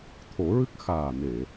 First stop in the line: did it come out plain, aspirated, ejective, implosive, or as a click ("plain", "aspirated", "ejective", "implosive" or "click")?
aspirated